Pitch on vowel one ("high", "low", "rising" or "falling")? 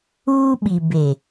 high